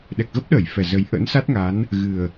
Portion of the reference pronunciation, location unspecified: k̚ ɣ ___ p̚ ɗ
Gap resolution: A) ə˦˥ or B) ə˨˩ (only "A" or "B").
A